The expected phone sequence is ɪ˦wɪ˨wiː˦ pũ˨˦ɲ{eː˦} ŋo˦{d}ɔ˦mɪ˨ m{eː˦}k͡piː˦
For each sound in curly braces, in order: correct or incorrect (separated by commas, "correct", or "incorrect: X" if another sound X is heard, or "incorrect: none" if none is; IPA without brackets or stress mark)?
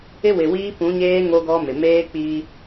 correct, incorrect: ɡ, correct